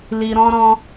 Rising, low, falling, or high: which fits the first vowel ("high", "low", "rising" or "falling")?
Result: low